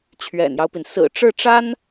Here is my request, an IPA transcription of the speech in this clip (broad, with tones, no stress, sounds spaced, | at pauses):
t͡ɕʰ ɥ ɛ̰˨˩ n j ɑ˦ ʊ̯ p i˩ n s ɹ̩˨˩ ʈ͡ʂ ɻ̩˥˩ ʈ͡ʂ a˥ n